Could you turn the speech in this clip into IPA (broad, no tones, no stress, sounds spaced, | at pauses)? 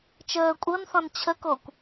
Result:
t͡ʃ əː kʷʼ ɤ n θ ɔ̃ n t͡ɕʰ ə k o kʷ